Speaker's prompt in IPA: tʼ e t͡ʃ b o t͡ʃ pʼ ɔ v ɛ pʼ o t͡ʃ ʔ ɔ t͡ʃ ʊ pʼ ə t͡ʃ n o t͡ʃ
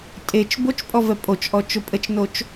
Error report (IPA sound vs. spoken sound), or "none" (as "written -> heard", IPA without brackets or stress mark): none